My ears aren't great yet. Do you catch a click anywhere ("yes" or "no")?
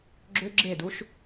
yes